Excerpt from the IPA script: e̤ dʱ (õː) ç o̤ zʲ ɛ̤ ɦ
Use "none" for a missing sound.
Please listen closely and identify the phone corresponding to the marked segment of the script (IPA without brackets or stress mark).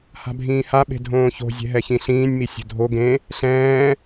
õː